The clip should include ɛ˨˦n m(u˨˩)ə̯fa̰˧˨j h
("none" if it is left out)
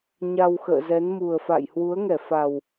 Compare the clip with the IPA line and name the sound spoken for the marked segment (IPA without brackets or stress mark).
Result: u˨˩